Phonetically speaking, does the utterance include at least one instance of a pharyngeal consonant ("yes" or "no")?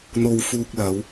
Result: no